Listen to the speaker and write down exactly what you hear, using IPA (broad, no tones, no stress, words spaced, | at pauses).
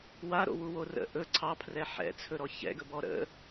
waɾo̰wuwo rə̰ ʔɵ ǀʰɑpʰrɛ ħɛ̰t͡sʰɵɾɔ çɛ̰ɡɵbɔ ɾə̰